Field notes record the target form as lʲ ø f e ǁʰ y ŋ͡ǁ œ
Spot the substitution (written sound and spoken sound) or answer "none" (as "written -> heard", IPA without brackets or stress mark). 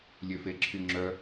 none